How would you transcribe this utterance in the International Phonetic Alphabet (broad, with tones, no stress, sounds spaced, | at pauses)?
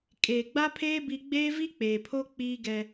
kʼ eː˨ ɡ͡b a˦ pʰ eː˦ b i˦ ɡ͡b eː˦ v i˦ k͡p eː˨ pʰ o˦ k͡p iː˦ ɡ ɛ˦